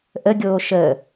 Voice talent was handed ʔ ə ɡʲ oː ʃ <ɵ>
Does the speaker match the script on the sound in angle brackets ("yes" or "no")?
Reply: no